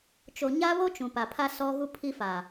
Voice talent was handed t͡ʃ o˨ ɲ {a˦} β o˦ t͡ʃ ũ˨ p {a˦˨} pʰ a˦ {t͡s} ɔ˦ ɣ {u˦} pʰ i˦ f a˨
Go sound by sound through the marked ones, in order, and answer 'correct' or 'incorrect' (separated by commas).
correct, incorrect, incorrect, correct